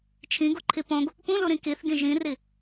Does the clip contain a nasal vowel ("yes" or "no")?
yes